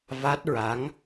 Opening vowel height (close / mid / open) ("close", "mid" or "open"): open